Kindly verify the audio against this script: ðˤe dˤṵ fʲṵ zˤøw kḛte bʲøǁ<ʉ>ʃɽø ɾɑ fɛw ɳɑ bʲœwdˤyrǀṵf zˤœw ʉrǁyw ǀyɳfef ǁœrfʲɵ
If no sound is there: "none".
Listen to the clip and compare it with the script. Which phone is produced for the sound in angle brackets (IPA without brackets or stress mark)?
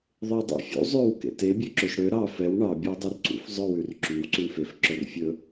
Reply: ø